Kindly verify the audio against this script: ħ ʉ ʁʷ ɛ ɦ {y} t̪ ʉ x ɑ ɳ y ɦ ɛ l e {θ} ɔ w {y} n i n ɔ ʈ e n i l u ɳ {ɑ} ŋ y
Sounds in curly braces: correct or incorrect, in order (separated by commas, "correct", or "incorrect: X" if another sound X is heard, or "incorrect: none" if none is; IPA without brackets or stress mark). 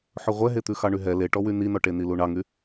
incorrect: e, incorrect: ʈ, correct, correct